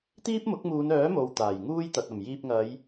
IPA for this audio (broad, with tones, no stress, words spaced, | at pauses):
t̪iː˥p̚mʊ˨˥k̚muː˨˧nœː˨˥ mo˨wt̪aː˨˩j ŋuː˥jt̪ɐ˨t̚ ɐ˨˩m jiː˧p̚ ŋɐ˨˧j